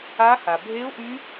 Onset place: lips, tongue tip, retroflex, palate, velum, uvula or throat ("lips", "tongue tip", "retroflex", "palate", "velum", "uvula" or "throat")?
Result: throat